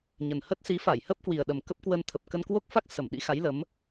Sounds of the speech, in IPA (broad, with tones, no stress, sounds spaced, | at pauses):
ɲ ə˨˩ n h ə˦˥ t̚ s i˨˦ f a˧˩ j h ə˦˥ p̚ k w i˨˩ ə̯ ɗ ə˨˩ m k ə˦˥ p̚ k w ə˧ n t̪ʰ ə˨˩ p̚ k ə˧ n k w o˦˥ k̚ f a˦˥ k̚ s ə˧˩ m ɗ ḭ˧˥ x a˨˦ j l ə˨˦ m